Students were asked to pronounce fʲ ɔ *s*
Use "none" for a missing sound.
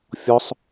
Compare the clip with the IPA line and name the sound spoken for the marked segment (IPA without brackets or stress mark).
sˤ